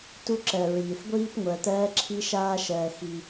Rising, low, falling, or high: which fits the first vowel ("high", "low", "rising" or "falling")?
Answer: high